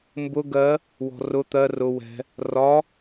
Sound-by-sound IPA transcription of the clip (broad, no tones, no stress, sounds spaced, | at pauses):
m b ʊ ɡ ɜ | w ɔ̤ r ʊ t̪ ɜ r ʊ w ɛ̤ | r ɒ